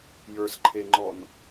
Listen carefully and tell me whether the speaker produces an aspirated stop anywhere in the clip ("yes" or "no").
yes